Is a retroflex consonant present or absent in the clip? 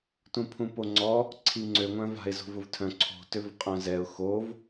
absent